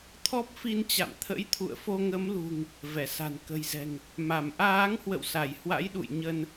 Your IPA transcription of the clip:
t̪ʰɔ˦˥p̚fi˧nt͡ɕa̰˧˨m t̪ʰə̰˧˥jt̪ʰṵ˧˨ə̯ fo˧ŋə˨˦mlṳ˨˩ŋ | vɛ˧˩sa̤˨˩n kə̤˨˩jzɛ̤˨˩ŋ | ma˧˩m ʔaː˨˦ŋhwə̰˧˨wsa˧˩j hwa̰˧˥jɗṵ˧˨j ɲə˧n

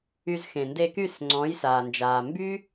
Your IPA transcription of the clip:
y˧z xẽ˨nde˧ky˦˨s ŋ͡ǀɔ̃ː˨˦jsaː˨nd͡ʒaː˨ mby˦

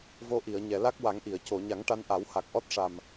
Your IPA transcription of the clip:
vo˧ʔi˨˩˨ə̯ɲɛ˨˩˨ la˦˥k̚wa˨˩˦ŋʔi˨˩˨ə̯ co˨˩˨ɲa˨˩˦ŋ ʈa˧nʔa˨˩˦wha˨˩k̚ ʔɔ˦˥t̚ʂa˨˩m

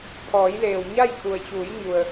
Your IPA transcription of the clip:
pʰɔː˩˧j leː˩wɲa˥˨j kʰu˩ə̯t͡ɕuː˩˧jɲu˩ə̯

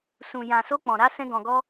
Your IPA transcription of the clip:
sũ˨ jã˨so˧ k͡pɔ̃˨ ɾa˨˦sɛ̃˧ɡɔ̃˨ɡɔ˧

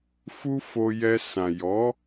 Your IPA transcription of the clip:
fu˦fo˧jɛ˧sã˨ jɔ˨˦

